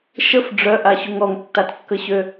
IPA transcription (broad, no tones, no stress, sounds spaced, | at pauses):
ʃ ə f ɖ͡ʐ œ ʔ a ɕ u ŋ ɔ ŋ tː a t kː ə ɕ ø